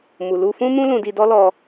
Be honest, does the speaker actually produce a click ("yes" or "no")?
no